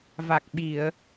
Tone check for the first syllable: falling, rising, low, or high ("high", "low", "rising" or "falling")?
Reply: low